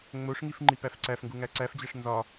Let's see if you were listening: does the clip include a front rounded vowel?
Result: no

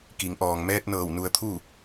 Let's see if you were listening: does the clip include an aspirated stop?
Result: yes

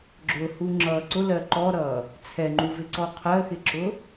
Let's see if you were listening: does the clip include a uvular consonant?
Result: yes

